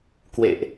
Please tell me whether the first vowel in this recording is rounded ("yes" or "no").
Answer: no